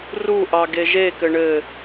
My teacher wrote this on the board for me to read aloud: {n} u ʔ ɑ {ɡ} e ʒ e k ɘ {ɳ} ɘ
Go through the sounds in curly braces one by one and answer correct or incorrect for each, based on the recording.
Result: incorrect: r, correct, correct

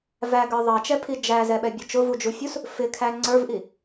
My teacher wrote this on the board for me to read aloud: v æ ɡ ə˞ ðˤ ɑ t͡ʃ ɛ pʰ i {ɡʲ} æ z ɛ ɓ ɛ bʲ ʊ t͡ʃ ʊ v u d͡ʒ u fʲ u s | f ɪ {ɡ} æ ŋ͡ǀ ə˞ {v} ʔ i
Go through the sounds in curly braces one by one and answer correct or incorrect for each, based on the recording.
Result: incorrect: d͡ʒ, incorrect: kʰ, correct

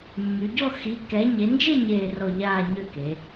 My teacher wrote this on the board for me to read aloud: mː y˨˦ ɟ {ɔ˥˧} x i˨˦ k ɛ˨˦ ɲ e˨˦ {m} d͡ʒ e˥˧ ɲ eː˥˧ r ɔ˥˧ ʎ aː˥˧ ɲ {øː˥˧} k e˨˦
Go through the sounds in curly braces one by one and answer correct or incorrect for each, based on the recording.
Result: correct, incorrect: n, incorrect: ø˥˧

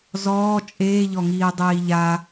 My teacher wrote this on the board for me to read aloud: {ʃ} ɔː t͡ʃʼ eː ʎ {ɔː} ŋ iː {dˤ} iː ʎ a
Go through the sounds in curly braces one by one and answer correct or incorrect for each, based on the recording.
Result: incorrect: z, incorrect: ɔ, correct

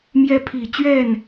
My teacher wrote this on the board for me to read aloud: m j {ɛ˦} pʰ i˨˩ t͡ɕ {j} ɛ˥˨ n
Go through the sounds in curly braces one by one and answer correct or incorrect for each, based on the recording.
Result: correct, incorrect: ɥ

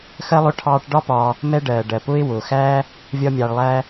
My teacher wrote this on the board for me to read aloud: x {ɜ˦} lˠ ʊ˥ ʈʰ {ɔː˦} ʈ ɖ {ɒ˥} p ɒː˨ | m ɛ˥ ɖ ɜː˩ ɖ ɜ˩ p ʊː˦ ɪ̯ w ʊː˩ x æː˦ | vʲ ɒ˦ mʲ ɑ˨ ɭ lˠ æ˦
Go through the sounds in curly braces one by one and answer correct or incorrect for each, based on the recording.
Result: correct, incorrect: ɑː˦, correct

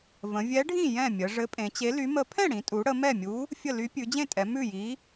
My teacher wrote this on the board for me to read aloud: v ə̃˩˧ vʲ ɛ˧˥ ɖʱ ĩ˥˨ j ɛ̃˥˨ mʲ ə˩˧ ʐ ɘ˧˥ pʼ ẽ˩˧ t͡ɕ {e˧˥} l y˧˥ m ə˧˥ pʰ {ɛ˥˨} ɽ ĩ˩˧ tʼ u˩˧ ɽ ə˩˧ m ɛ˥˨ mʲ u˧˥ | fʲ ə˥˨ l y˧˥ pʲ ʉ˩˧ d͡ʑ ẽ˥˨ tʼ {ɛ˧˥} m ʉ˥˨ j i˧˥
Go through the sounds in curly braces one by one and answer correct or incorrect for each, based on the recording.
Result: correct, incorrect: ɛ̃˥˨, incorrect: ɛ˩˧

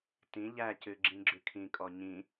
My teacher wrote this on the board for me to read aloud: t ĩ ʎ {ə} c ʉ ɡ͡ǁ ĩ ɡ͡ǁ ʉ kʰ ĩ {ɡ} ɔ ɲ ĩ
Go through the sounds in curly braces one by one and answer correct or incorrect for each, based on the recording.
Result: incorrect: æ, incorrect: kʼ

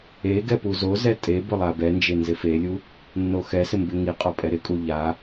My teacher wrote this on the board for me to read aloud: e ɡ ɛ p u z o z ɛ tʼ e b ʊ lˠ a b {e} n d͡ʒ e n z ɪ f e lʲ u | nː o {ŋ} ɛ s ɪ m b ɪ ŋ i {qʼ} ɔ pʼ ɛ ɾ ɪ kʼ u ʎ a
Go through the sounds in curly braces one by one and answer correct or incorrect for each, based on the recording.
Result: incorrect: ɛ, incorrect: x, correct

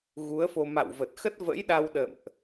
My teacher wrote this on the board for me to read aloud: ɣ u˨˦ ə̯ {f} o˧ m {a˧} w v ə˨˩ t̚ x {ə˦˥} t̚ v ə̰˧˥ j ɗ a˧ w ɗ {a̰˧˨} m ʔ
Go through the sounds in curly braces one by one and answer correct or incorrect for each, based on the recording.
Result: correct, incorrect: a̰˧˨, correct, incorrect: ə̰˧˨

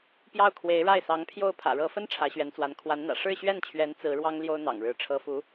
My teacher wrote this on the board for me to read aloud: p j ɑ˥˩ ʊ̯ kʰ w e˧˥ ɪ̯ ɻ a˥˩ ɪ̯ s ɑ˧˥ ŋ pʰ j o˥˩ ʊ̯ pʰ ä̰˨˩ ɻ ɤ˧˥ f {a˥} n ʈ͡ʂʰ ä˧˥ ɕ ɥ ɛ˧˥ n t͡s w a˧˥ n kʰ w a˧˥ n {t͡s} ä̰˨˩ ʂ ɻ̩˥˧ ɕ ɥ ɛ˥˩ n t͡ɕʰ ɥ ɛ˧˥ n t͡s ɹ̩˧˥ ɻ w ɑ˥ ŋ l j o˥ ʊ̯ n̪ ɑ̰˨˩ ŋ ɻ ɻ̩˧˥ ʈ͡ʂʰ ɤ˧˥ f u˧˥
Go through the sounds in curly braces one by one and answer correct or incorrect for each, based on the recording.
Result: incorrect: ə˥, incorrect: n̪

